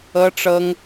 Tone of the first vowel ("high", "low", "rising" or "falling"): high